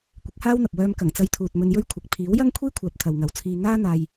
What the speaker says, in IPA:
kʷ ɪ˨˥ k̚ h aː˥ w n̪ ɐ˨ p̚ w œː˧ m k ɐ˨˩ ŋ t͡s ɐ˧ j t̪ʰ uː˨ t̚ m ɵ˧ n j ɵ˥ ɥ kʷʰ ɐ˨ k̚ pʰ iː˨˥ w j ɐ˥ ŋ kʷʰ iː˥ kʷʰ aː˨ p̚ t̪ʰ ɐ˨ w ŋ ɐ˨˥ w t͡sʰ iː˧ ŋ aː˥ n̪ aː˧ j

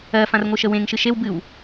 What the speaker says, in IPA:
ɜ f ã r ŋʷ ɯ ʃ ə w ẽ ŋ ʃ ɨ ʃ e w b ɨ w

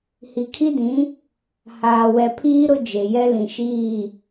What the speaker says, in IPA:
h i˨ kʰ i˦ d ĩ˨˦ | h aː˨ w ɛ˨ pʰ iː˦ ɾ ʊ˦ d͡ʒ e˨ j ɛ˦ l ĩ˨ ʃ iː˦˨

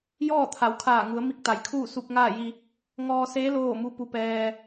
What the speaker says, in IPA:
j ɔː˥˨ t̪ʰ a˩˧ w kʰ aː˧˩ ŋ u˩˧ ə̯ m i˧ k̚ t̪ a˩˧ j kʰ uː˥˨ s u˧ p̚ ŋ aː˥˨ j i˧ | ŋ ɔː˧ s eː˧˥ l oː˥˨ m u˧˥ p u˧ p ɛː˧

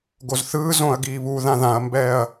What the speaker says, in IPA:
ɡ o z θ ɯː z õ ɐ̯ ɡ iː β u ð ã ð ã ɐ̯ m b ɛː ɐ̯

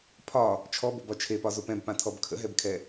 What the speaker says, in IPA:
pʰ ɒ | t͡ʃʰ ɔ b o b ɒ t͡ʃʰ e p ɒ z o p ɛ̃ b p ã tʰ ɔ b kʰ ə̰ ɦ ɛ b kʰ ɛ

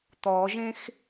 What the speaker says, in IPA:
t̪ ɔ ʒ ẽ x

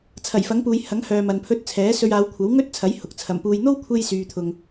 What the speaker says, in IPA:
t͡sʰ ɐ˨˩ j f ɐ˨˥ ŋ p uː˨ j h ɐ˨˥ ŋ h œː˨ m ɐ˨ n pʰ ɵ˧ t̚ t͡sʰ ɛː˨˥ s ɵ˧ ɥ aː˨˧ w kʷʰ ɐ˨˥ w ŋ ɵ˥ t̚ t͡sʰ ɐ˨˥ j h ʊ˨ k̚ t͡sʰ ɐ˨˩ m p uː˨ j n̪ o˥ w kʷʰ e˥ j s yː˨ t̪ʰ ʊ˨ ŋ

